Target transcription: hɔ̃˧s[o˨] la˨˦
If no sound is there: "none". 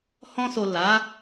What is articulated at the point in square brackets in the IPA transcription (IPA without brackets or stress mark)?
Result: o˨